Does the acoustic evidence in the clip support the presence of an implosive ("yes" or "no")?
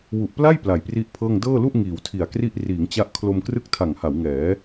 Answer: no